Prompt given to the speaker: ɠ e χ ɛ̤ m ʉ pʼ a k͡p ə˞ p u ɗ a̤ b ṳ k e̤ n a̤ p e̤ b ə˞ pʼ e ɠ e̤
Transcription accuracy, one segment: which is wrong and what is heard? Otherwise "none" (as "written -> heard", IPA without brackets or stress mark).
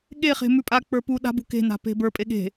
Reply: ɛ̤ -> e̤